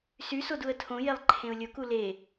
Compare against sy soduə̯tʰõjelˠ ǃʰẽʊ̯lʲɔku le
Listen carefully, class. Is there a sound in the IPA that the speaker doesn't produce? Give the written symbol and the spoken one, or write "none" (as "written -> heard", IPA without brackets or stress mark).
ɔ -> o